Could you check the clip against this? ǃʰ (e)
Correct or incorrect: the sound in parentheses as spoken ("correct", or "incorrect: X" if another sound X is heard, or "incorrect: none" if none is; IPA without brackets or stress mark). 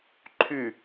incorrect: y